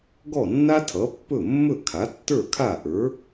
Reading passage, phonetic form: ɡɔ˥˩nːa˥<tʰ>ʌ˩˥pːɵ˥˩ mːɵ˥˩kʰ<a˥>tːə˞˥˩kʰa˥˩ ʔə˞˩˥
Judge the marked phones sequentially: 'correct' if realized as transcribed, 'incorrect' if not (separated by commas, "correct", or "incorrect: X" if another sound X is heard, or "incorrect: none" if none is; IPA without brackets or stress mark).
correct, incorrect: a˩˥